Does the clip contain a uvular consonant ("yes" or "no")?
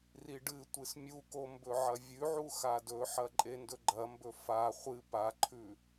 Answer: yes